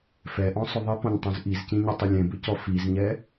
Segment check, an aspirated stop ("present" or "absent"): absent